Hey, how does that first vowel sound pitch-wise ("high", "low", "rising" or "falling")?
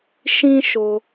high